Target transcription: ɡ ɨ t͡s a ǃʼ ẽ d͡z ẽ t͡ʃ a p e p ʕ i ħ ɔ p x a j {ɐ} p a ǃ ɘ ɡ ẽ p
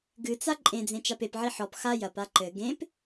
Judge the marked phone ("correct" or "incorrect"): correct